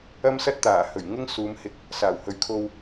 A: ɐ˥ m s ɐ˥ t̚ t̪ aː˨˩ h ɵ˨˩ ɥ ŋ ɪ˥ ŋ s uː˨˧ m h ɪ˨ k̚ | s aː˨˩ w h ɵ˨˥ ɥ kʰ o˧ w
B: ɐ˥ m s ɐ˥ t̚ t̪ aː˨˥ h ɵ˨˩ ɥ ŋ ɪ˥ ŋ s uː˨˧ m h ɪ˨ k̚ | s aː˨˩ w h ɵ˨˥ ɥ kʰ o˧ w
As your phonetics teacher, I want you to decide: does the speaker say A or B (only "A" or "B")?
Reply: A